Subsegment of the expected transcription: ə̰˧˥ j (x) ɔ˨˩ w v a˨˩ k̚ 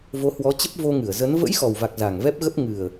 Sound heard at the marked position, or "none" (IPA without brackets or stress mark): x